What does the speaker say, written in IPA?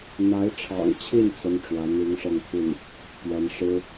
n̪ a˧˥ ɪ̯ ʈ͡ʂʰ ɑ̰˨˩ ŋ t͡ɕʰ i˥˩ n t͡s ə˥ n ʈ͡ʂ w ä˧˥ n̪ i˧˥ ŋ ʂ ɤ˥˧ ŋ t̪ʰ i˥˩ n | p ɥ ɛ˧˥ n ʂ ɻ̩˥

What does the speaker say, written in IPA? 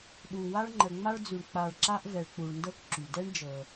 ɗ u˨ w a˥ ɭ ŋ͡ǃ ə˨ ŋ͡m a˥ ɭ d͡z ʉ˨ ɳ k͡p a˨ ɭ ǁ a˦ ʔ v ɛ˨ ɭ k͡p u˨ ɭ n d ɤ˦ k ǁ y˩ d ɛ˥ ɳ d͡ʒ ɤ˨

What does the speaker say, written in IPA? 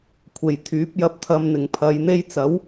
kʷʰ e˨ j t̪ʰ yː˨˥ p̚ j ɐ˧ p̚ t̪ʰ ɐ˧ m n̪ ɪ˨ ŋ pʰ ɐ˨˧ j n̪ e˥ j t͡s ɐ˨˥ w

